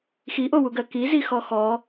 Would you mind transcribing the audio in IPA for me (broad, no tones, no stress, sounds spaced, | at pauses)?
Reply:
x i ʔ o w u ɡ ɜ k i z i x ɔ x ɔ